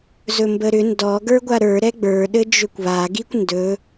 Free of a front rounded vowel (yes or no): no